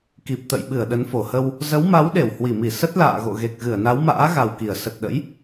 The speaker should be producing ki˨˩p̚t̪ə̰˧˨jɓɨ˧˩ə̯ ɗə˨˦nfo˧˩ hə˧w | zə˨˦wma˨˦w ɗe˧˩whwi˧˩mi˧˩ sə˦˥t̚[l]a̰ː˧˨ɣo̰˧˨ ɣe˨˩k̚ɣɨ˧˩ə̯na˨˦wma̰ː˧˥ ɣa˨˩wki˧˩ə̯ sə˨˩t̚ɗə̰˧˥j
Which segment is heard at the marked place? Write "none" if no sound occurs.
l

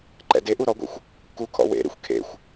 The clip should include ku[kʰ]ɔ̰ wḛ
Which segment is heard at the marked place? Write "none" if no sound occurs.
kʰ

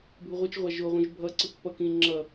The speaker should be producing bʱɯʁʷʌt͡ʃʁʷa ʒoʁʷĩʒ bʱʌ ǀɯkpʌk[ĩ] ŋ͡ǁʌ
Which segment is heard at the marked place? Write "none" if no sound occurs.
ĩ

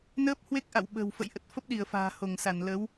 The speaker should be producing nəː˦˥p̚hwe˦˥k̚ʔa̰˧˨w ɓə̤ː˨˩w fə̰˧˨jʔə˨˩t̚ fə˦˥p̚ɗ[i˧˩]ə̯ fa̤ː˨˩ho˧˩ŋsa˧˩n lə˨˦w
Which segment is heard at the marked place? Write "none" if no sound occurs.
i˧˩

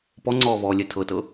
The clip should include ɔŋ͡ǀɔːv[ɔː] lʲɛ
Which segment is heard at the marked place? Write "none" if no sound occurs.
ɔː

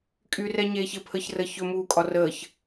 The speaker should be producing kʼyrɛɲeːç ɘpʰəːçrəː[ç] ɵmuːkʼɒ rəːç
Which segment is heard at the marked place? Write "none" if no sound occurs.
ç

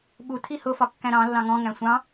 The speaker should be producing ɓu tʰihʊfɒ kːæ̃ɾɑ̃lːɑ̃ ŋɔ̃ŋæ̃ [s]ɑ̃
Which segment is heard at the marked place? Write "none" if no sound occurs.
sʷ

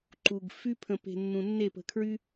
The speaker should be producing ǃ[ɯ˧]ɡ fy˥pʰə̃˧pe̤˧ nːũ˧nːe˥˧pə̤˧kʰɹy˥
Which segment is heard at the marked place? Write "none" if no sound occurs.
u˧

